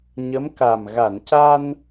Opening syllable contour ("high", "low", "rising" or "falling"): rising